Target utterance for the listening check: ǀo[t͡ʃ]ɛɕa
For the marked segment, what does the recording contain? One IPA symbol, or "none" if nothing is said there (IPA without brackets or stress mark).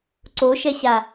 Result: ʃ